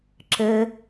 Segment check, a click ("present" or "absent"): present